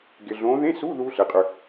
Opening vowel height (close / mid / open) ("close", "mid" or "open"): close